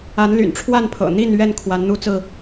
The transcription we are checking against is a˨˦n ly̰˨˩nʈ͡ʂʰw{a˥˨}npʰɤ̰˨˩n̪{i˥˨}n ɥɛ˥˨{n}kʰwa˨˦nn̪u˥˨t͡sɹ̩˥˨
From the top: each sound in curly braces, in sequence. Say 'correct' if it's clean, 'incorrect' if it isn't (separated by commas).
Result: correct, correct, correct